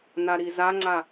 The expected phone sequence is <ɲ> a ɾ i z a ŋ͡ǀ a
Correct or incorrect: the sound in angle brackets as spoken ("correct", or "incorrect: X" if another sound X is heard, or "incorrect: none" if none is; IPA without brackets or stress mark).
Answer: incorrect: n